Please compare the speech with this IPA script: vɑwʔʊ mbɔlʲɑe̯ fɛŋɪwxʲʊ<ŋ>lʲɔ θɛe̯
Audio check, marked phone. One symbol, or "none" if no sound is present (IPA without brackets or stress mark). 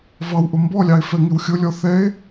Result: none